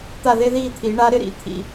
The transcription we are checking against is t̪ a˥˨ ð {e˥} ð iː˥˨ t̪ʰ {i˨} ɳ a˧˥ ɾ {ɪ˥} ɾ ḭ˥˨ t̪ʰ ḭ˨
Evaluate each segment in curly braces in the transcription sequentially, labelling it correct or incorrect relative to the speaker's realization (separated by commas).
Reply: correct, incorrect, correct